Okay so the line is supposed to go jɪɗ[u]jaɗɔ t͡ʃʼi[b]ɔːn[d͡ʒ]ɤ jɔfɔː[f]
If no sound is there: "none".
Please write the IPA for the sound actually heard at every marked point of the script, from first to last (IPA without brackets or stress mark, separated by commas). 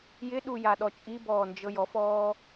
u, b, d͡ʒ, none